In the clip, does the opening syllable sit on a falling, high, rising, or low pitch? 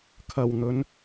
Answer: low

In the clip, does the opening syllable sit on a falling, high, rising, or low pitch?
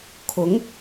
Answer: rising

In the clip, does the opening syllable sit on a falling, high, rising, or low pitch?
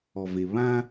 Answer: low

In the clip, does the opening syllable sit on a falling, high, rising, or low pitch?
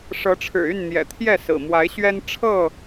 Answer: rising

